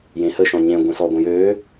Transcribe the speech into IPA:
j ẽ h ə ʃ ɔ̃ ɲ ẽ ɡʷ ə̃ s ɔ ɡʷ ə̃ j ø

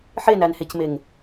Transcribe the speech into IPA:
ħ e n æ n h e c m e ŋ

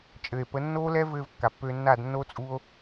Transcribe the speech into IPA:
t͡ʃʼ ɘ˨ e̯ p ə˨˦ nː oː˦ l ɛ˦ v ɘː˧ v kː a˨ pː ø˧ nː a˦˨ d nː o˦ t͡sʼ u˦ o̯

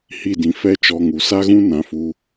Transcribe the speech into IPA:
h i˦˨ d ĩ˨ f ɛ˦ t͡ʃ ɔ˧ ŋ u˨ s a˦ ɣ ũ˦ n ã˧ f u˧

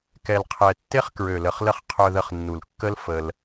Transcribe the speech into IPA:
k ɛ˨ l qʰ ɛ˨ tː e˦ χ k ɹ ø˨ l ə˨ χ l ə˧ χ qʰ œ˧ ð ə˧ χ nː u˨ l kː ə˦ l f ə˧ l

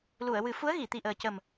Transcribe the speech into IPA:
l u˨˩˨ ə̯ w ɨ˨˩˦ f u˧˥ ə̯ ɣ i˨˩˨ t̪ i˨˩ ʔ əː˨˩ c ə˨˩ m

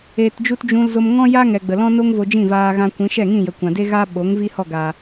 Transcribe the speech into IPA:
eː˧ t d͡ʒ u˦ t d͡ʒ ũ˧ l z o˧ m ŋ ɔ̃˦ j a˦ ŋ ɛ˨ ɡ͡b ə˨ l ɔ̃˦ n o˦ ŋ v o˧ d͡ʒ ĩ˦˨ v aː˧ ɣ ã˧ kʷ ĩ˨˦ ʃ ɛ˦˨ ŋ ĩ˦˨ j ə˨ kʷ ã˨ d e˦ ɣ a˦ ɓ o˨˦ ŋ v i˦ h ɔ˦˨ ɡ a˨

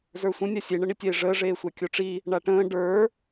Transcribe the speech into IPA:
z ə˞ sʷ ə̃ nʲ a sʲ e ɳ ə ɳ i tʲ eː ʐ əː ʐ eː sʷ a kʲ o ʈ͡ʂ i | ɳ a ʈ ə̃ː ɖ ə˞

